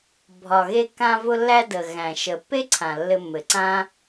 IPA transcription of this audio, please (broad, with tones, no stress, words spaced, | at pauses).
bʱɒ˩ɣe˧kːã˧ vʊ˧lːæ˧də˩ ɣæ̃˩ ʃə˩pːe˥ǀʰã˩ lːɘ˧mːɘ˩ǀã˥